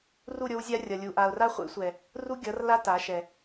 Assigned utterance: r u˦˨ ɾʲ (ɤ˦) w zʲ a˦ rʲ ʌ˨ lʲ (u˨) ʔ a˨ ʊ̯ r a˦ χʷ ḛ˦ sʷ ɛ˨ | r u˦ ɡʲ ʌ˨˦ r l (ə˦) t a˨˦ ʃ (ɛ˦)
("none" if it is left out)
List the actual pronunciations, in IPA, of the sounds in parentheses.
o˦, u˨, a˦, ɛ˨

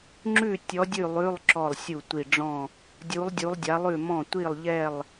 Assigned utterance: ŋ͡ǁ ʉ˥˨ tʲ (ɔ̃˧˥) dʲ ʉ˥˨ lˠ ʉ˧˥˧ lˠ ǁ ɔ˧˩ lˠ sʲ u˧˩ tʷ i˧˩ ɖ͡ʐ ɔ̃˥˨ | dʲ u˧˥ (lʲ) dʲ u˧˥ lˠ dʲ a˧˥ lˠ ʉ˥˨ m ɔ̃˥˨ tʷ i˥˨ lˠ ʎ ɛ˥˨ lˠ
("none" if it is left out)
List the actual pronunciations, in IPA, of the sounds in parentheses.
ɔ˧˥, lˠ

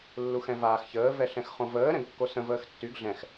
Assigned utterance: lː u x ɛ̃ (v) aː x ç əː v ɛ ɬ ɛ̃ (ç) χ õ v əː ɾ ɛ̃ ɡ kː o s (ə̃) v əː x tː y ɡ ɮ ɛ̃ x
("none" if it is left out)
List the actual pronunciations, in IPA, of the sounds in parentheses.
v, x, ə̃

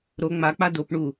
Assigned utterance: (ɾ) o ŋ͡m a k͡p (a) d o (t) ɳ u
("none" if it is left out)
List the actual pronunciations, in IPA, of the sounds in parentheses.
ɾ, a, p

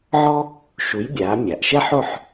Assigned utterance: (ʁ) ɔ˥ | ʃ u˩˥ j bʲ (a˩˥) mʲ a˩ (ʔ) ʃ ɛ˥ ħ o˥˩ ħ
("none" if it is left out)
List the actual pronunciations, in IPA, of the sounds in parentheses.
ʕ, aː˩˥, ʔ

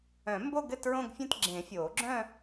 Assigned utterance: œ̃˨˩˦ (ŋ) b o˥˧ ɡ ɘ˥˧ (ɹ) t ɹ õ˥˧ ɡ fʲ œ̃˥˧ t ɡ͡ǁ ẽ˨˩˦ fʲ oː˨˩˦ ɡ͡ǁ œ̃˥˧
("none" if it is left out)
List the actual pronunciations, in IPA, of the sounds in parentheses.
m, none

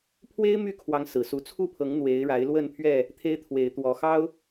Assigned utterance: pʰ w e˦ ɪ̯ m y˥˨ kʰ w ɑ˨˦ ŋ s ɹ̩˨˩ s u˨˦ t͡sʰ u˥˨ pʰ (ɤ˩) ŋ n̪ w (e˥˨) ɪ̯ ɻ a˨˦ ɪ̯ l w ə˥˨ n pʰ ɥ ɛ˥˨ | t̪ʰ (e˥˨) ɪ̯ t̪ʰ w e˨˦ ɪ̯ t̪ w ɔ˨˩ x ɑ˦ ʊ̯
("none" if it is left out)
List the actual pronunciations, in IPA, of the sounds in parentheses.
ɤ˨˦, e˨˦, e˦

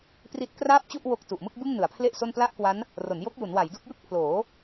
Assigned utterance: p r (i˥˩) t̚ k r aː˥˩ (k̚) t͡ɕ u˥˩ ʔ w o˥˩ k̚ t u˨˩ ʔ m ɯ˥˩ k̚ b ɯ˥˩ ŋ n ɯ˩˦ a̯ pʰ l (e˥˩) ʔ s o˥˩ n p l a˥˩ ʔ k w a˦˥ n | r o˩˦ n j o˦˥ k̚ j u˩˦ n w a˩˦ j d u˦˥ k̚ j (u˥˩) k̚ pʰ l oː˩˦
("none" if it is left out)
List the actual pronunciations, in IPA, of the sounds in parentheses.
i˦˥, p̚, e˥˩, ɯ˥˩

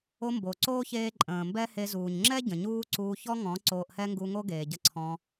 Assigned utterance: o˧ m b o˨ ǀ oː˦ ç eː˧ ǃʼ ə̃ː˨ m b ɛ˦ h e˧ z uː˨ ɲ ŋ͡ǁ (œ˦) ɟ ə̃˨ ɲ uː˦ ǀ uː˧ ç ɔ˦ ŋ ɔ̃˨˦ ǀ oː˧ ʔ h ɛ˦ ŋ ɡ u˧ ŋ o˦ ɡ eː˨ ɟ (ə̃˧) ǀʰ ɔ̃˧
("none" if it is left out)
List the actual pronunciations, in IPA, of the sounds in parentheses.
ɛ˦, ə˧

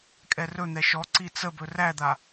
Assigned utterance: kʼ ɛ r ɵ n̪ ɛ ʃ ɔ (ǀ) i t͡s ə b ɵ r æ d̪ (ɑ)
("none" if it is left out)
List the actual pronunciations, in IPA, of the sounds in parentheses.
ǀ, a

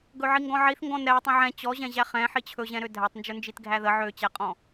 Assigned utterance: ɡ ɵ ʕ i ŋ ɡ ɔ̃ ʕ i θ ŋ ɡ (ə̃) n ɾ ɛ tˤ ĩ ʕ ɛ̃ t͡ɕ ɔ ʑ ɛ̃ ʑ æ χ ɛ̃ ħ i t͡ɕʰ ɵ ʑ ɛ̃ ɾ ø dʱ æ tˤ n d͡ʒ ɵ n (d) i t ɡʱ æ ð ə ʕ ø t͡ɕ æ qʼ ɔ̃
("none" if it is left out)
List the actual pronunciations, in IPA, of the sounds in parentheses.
ɔ̃, d͡ʒ

